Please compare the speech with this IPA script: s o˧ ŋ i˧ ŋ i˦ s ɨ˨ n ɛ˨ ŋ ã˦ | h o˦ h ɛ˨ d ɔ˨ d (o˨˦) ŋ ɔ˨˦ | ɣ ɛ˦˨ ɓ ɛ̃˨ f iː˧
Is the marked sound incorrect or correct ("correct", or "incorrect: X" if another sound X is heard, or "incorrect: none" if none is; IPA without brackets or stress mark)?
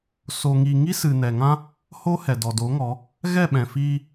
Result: correct